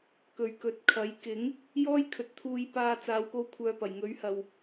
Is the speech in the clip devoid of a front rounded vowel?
no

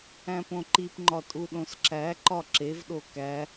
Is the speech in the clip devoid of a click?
no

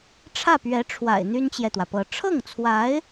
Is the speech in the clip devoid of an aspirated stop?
no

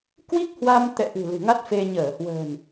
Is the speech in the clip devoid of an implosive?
yes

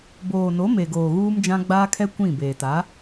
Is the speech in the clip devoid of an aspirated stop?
no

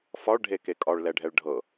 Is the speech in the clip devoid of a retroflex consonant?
no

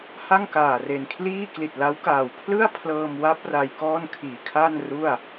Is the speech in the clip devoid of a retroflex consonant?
yes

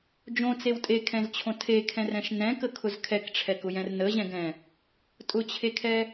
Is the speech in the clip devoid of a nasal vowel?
no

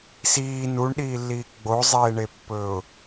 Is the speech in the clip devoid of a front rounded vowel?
yes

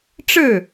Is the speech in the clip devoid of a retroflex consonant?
no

